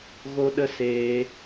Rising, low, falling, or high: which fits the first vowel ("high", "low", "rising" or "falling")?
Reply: high